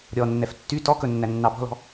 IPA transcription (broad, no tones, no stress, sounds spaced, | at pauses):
ɾʲ ɔ nː ɛ f tː y t ɔ k ɵ nː æ nː ɑ b ɔ̤ l ɔ̤